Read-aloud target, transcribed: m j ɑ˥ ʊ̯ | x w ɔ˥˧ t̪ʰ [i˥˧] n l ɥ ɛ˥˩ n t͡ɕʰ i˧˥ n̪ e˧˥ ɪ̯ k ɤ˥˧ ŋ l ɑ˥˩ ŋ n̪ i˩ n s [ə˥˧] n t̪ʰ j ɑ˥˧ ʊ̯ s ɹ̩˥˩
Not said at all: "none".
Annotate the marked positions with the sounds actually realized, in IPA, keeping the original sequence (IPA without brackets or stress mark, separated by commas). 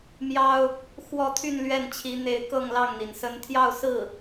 y˥˧, ə˧˥